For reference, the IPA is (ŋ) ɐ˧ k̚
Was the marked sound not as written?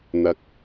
yes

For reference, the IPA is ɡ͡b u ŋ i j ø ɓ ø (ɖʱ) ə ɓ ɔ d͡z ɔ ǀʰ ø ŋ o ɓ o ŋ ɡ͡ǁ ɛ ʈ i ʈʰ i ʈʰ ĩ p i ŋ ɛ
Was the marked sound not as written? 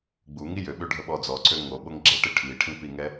no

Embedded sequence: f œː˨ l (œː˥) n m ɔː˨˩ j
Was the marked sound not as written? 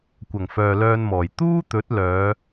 yes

